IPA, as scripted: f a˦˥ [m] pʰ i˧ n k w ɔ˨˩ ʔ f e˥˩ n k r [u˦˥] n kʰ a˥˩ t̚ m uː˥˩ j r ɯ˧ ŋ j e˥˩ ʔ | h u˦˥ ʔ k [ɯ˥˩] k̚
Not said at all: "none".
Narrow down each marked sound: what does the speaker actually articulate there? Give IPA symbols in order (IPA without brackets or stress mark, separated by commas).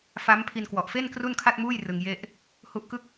m, u˥˩, ɯ˥˩